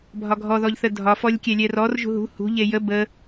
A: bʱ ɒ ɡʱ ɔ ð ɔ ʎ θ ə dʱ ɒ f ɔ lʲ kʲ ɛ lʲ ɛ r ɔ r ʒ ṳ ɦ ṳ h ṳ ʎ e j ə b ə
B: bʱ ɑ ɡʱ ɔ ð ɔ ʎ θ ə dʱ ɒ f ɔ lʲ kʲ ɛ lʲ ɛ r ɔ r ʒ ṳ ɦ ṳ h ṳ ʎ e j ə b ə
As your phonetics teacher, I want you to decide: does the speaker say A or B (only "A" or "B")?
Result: A